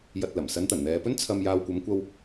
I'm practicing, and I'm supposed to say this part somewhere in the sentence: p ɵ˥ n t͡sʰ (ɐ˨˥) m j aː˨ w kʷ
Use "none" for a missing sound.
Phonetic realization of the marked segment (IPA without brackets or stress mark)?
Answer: ɐ˨